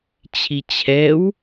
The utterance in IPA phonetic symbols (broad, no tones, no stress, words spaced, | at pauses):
t͡ɕʰit͡ɕʰɛw